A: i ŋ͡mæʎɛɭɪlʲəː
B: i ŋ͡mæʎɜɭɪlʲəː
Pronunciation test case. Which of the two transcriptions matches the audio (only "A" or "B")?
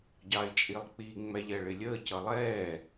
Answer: A